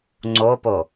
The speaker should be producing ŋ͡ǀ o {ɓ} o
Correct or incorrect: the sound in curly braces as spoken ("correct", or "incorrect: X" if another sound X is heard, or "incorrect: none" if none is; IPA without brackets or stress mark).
incorrect: p